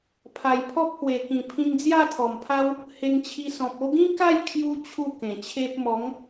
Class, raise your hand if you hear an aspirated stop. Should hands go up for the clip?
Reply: yes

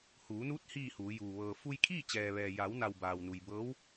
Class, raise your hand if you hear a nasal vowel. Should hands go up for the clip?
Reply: no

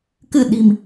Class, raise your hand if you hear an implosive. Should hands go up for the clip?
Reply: yes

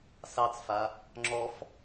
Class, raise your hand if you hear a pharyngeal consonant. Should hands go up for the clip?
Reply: no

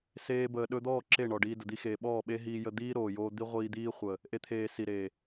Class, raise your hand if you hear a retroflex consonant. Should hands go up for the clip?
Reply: yes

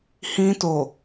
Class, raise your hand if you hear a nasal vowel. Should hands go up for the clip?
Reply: yes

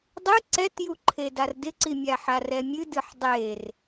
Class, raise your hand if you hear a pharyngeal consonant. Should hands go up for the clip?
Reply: yes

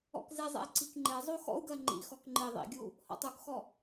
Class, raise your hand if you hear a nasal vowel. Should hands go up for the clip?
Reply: no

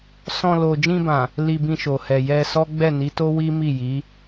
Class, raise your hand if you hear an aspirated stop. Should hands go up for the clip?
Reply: no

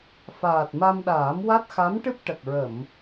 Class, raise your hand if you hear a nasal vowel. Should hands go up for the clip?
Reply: no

